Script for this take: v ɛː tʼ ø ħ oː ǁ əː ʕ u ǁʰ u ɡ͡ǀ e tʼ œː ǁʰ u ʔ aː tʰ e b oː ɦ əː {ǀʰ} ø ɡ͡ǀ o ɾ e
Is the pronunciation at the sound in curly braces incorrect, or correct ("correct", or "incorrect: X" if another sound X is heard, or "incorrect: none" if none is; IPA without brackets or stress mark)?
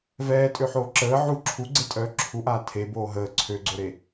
correct